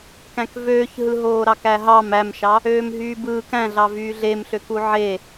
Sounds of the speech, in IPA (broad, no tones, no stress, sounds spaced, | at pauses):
k æ̃ k v øː ç ɦ ɯ ɦ oː ɾ ɑ k æ ɦ ɑ m æ m ʃ ɑ | øː m ɦ yː b ɯː k æ̃ ɮ ɑ v yː ɮ e m ɬ ø k u ʕ e